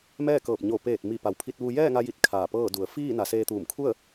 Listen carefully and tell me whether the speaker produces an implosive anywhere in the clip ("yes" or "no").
no